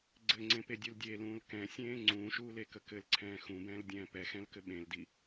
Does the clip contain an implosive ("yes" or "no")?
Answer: yes